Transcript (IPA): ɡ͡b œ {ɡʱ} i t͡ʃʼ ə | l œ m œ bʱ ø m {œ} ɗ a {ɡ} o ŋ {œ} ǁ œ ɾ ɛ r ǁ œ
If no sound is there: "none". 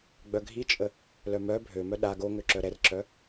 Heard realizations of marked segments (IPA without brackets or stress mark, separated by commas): ɡʱ, œ, ɡ, ø